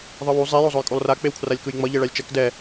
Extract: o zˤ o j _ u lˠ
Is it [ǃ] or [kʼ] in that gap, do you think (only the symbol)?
kʼ